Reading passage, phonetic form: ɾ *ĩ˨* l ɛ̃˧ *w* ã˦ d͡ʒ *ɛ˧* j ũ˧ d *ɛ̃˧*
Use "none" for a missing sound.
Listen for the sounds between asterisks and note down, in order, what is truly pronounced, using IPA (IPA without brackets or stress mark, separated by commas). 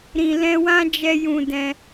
ĩ˨, w, ɛ˧, ɛ̃˧